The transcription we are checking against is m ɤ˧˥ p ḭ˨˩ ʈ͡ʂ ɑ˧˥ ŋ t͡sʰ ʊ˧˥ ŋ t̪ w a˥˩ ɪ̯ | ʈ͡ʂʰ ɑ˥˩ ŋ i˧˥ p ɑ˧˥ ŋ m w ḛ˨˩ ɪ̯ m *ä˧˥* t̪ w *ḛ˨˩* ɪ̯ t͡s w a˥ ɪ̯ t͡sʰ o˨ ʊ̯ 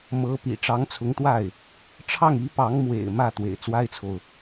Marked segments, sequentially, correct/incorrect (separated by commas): incorrect, correct